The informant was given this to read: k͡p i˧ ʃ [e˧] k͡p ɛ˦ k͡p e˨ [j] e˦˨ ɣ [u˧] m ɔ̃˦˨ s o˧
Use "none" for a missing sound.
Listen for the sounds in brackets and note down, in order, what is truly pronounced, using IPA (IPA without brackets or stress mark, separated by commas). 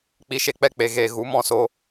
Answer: e˧, ɣ, u˨˦